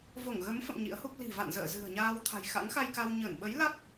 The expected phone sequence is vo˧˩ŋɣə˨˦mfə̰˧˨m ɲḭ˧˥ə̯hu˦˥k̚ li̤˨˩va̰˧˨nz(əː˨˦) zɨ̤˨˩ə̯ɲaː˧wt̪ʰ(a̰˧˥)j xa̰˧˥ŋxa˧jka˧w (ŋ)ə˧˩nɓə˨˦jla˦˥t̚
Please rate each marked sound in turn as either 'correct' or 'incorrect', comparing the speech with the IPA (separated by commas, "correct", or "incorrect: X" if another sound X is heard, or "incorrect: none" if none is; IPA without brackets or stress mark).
incorrect: ə̰ː˧˨, incorrect: a̤˨˩, incorrect: ɲ